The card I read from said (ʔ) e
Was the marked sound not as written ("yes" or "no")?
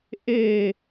no